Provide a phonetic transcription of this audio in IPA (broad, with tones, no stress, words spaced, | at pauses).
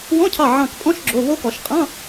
wɔ̃˧˥˧cʰɑ˧˩ ʕɑ̃˧˩kpʼɔ̃˦˥ʃɡ͡ǁo˩˧˩ βo˦˥kɔ˩˧ʃ qʼɑ̃˧˥˧